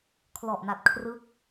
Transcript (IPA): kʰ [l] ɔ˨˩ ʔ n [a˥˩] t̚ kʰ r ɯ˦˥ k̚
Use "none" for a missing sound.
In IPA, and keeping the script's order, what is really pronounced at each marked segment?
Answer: l, a˨˩

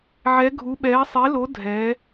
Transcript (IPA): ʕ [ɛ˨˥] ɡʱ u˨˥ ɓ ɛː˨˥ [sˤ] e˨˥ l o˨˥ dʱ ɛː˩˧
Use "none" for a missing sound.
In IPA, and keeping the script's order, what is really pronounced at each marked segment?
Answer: ɛ˨˥, sˤ

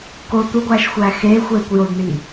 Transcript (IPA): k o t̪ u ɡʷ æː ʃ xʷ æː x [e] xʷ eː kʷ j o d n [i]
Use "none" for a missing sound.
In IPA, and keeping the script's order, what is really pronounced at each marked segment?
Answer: eː, iː

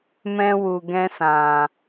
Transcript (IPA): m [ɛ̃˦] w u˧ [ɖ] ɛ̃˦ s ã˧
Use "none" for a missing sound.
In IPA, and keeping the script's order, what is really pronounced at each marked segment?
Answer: ɛ̃˦, ɡ

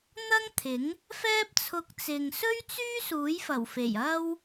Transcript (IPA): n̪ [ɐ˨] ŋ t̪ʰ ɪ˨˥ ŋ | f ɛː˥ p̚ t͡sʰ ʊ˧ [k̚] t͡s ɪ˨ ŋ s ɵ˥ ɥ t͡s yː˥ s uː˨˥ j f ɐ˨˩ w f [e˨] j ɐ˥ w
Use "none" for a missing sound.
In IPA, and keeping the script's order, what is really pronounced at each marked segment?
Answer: ɐ˥, k̚, e˨˩

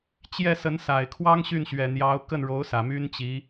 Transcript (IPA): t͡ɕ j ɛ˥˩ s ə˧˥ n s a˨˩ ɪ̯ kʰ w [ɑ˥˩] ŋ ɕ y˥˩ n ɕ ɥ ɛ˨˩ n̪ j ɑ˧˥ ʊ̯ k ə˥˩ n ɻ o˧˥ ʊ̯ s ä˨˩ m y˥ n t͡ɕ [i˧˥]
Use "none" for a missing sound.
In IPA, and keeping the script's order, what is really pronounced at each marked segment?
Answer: ɑ˥, i˧˥

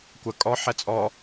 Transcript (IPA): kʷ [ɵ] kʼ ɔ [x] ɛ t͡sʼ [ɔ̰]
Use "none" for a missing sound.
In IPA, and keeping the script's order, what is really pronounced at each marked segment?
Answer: ə, ħ, ɔ

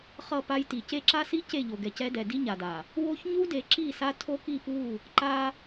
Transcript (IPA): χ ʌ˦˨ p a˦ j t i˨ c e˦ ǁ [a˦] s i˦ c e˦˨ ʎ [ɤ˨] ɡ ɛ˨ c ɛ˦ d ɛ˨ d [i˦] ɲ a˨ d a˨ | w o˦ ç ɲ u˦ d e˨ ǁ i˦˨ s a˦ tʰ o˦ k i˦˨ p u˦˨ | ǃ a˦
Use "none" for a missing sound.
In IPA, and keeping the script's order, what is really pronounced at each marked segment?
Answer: a˦, o˨, i˦

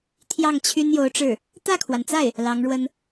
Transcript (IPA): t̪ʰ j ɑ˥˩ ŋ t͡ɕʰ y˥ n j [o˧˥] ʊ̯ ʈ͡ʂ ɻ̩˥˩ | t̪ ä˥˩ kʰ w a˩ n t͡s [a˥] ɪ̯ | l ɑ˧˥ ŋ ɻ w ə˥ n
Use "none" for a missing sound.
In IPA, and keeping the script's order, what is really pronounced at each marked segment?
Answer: o˧˥, a˥˩

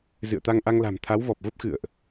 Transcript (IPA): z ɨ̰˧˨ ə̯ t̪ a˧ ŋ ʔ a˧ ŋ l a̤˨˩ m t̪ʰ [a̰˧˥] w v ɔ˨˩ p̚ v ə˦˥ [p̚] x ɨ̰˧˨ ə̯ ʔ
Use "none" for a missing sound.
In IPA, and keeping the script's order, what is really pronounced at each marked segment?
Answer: a˨˦, p̚

